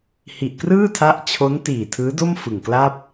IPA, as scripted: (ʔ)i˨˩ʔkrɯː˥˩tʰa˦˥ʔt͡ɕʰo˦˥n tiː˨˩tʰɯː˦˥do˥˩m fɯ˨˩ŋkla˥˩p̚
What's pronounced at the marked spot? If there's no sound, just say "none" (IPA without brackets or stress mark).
h